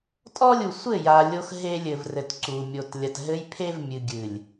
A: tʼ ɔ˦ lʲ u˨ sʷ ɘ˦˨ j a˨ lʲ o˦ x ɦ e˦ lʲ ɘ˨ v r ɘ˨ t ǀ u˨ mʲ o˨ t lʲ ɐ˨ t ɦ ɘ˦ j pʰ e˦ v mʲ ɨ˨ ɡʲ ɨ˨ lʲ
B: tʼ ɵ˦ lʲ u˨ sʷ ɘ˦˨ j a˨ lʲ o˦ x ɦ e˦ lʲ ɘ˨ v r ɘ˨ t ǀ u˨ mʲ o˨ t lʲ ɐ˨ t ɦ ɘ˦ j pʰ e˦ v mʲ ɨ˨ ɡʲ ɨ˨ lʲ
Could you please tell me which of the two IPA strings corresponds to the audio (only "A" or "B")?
A